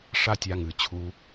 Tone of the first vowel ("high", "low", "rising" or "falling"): high